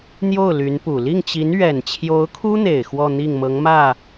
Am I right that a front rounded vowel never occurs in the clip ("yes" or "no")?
no